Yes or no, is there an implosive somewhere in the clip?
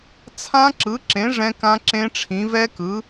no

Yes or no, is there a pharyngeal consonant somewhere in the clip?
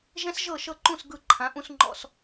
no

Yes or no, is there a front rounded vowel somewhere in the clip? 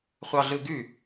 yes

